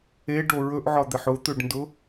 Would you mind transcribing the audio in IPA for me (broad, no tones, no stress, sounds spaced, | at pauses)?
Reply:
e ɖ o ɹ ɵ ʔ ʕ ɒ d̪ ɛ ħ ʊ t̪ ɵ ɖ n d ʊ